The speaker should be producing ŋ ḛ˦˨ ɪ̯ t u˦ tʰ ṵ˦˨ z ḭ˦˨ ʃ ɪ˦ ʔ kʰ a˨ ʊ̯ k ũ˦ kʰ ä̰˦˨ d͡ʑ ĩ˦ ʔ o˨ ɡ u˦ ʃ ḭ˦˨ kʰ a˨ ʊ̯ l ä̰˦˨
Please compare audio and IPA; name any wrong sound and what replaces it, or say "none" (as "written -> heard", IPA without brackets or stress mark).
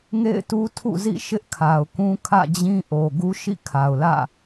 none